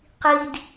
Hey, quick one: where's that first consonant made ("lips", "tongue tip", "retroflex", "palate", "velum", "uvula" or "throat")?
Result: uvula